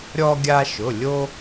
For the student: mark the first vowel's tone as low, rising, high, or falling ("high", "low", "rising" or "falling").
high